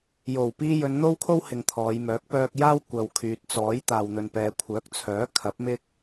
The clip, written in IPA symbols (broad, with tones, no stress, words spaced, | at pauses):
jo˨˩w piː˧jɵ˨˧nn̪o˥wkʰo˥w hɪ˨ŋt̪ʰɔː˨˧jmœː˨˥k̚ pœː˧k̚jaː˥w kʷɐ˨wkʰyː˨t̚t͡sɔː˨˥j t̪aː˨wn̪ɵ˨npɛː˨ kʷʰœː˨˥k̚t͡sʰœː˨˥ kʰɐ˨˥p̚mɪ˥k̚